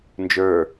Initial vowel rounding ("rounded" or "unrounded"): unrounded